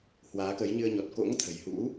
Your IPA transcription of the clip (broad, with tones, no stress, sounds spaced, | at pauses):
h w aː˨˦ k ə˨˦ j ɲ ɨ˧ ə̯ ɲ ɔ˨˩ t̚ k o̰˧˥ ŋ t̪ʰ ə̤˨˩ j h ṵ˧˥